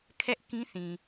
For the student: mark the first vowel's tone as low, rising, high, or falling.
high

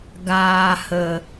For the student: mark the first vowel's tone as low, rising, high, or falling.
low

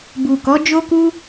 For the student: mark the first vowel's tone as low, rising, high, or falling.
low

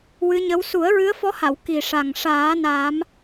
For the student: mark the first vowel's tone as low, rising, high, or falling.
rising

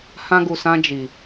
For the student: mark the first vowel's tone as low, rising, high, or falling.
high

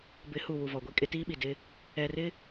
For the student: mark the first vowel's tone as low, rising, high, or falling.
rising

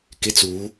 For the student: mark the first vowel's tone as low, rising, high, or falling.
high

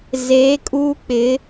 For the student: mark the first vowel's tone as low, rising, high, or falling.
rising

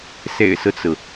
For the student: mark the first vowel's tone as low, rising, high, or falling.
low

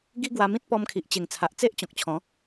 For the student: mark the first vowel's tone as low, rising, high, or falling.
high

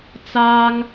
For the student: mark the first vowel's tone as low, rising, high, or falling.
high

